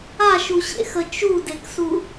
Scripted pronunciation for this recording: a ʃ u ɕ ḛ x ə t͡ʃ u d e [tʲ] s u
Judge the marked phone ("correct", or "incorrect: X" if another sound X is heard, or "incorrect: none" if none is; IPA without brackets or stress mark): incorrect: k